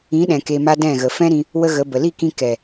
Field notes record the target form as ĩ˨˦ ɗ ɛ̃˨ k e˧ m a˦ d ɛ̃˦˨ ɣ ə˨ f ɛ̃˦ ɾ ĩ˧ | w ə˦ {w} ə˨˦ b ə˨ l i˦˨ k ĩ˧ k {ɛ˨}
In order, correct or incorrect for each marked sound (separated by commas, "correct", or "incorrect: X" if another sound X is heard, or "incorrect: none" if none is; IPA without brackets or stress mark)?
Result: incorrect: ɣ, correct